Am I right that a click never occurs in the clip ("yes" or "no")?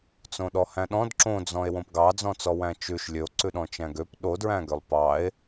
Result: no